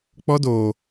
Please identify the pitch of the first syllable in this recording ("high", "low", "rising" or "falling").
high